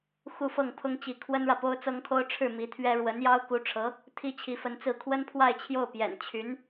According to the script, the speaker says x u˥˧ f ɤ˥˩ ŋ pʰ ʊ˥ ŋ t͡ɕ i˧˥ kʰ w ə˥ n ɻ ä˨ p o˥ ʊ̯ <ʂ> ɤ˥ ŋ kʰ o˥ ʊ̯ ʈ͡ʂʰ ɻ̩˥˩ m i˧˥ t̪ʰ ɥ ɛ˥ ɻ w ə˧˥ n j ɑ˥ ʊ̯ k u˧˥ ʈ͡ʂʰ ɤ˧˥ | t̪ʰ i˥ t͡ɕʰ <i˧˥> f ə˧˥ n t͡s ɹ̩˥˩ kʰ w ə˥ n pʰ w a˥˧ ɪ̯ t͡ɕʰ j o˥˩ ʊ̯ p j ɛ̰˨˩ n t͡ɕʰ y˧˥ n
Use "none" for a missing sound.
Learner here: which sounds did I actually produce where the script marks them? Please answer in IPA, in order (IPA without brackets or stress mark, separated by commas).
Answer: t͡s, i˧˥